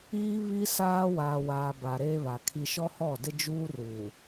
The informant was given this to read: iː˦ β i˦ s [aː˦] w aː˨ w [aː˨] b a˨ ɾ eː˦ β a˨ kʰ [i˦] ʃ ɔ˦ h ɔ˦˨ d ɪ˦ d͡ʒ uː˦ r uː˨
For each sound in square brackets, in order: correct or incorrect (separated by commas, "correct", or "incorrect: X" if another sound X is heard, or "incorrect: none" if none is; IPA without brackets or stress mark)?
correct, correct, correct